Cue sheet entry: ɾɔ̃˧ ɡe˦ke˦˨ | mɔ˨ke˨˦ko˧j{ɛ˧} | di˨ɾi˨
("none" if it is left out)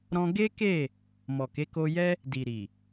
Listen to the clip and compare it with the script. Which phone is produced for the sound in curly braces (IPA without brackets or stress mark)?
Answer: ɛ˦